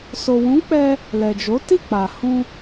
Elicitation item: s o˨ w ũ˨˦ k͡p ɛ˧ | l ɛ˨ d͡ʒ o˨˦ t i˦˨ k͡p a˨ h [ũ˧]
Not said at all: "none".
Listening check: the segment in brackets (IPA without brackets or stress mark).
ũ˧